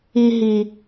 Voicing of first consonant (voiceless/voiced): voiced